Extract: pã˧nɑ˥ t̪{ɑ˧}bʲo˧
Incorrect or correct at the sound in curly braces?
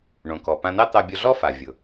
correct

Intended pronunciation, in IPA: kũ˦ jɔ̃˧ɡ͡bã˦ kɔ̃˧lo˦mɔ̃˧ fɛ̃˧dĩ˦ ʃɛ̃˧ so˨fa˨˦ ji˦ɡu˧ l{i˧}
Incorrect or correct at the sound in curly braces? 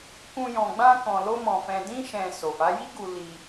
correct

